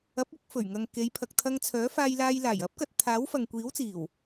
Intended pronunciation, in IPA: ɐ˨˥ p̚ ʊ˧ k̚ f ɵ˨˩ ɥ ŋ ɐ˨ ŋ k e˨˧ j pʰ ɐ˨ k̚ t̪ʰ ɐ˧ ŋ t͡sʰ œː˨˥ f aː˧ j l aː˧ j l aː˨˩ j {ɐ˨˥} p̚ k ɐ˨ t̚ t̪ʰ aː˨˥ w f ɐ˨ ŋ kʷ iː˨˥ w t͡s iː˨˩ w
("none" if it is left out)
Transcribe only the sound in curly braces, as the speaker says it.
ɐ˨˥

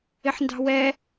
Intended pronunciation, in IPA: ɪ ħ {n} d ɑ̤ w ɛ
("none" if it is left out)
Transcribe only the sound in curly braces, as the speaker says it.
n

